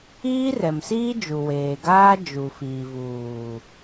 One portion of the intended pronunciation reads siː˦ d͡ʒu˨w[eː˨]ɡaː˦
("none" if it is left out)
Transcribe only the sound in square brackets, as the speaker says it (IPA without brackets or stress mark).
eː˨